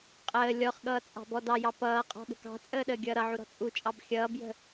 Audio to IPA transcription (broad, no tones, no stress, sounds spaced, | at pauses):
qʼ əː lʲ ɔ χ ɠ ʌː t͡sʼ ɑ̤ b ɔ d ɑ j ɑ p ʌː qʼ ɔ̤ ɠ ə̤ k ɑ̤ t͡sʼ əː ɗ əː ɡʲ ʌː ɾ ʌ ʕ u ɾ ɔ̤ t͡sʼ u t͡ʃʼ ɑ b xʲ ʌː b j ə̤